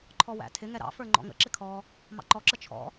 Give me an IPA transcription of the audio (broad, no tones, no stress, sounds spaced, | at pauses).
ǃʰ ɔ w æ̰ tʰ ɪ ŋ ɛ ɾ ɑ̰ f ə˞ ŋ͡ǃ ɔ̰ ŋ ə̰ ǁ ɪ kʰ ɔ | m ɑ̰ ǃ ɔ ǁ ə t͡ʃʰ ɔ̰